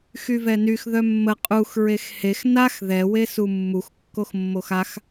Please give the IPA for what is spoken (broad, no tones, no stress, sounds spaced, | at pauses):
x y v ɛ n y x ð œ mː ə qʼ u x ɹ e x h e x n a x ð ɛ w e s u mː u x kː o x mː o x a x